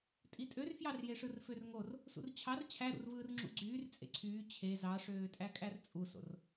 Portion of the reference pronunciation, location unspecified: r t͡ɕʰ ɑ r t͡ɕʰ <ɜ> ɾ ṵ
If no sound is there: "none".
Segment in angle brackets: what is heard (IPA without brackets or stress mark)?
æ